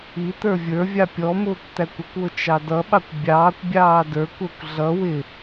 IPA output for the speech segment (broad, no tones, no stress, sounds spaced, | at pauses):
i t̪ ə˞ vʲ ə˞ vʲ ɑ pʲ ɔ m ʊː kʷ t̪ æ kʷ ʊ kʷ w ʊ t͡ʃ ɑ d ʌ ɓ ɑ kʷ bʲ ɑː kʷ bʲ ɑː d ə˞ kʷ ə˞ kʷ ɮ ʌ w ɪ